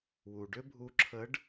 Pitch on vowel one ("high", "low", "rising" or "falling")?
low